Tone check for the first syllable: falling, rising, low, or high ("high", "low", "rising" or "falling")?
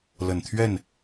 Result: low